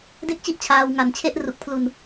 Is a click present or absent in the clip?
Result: absent